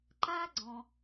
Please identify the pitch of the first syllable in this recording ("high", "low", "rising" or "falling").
high